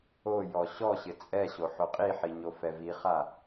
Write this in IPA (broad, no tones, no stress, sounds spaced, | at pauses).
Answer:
o j ɔ ɕ ɔ ɕ ɪ t͡sʼ ɛ ɕ o ħ o qʼ i ħ i ɲ o f ɛ v i χ a